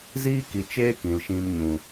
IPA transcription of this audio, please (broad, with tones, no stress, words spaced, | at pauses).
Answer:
ziː˦ki˨t͡ʃeː˦ kĩ˨lʃĩ˧mɲũ˨